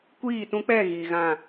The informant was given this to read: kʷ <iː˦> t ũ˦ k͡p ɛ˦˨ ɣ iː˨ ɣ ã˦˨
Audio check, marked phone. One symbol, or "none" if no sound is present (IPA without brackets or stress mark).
iː˦˨